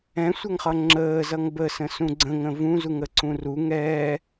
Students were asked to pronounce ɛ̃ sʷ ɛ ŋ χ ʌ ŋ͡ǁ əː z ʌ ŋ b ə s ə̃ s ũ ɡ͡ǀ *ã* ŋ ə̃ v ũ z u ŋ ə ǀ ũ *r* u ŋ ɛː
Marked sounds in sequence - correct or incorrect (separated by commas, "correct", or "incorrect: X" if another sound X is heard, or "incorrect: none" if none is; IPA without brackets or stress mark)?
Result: incorrect: ə̃, correct